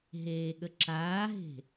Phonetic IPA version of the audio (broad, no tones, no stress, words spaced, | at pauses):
ɦeːɠəǁaːɦe̤